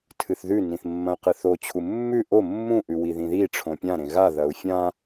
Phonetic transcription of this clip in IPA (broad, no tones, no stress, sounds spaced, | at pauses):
tʰ ɨ θ ð ʉ n ĩ θ mː ɐ̃ y̯ q ɨ θ o t͡ɕʰ u mː ʉ ʔ o mː ũ ʔ ʉ w i ð ĩ ð i ʈ͡ʂʰ õ pʲ ã ɾ ẽ ɣ a ð ɐ u̯ fʲ ã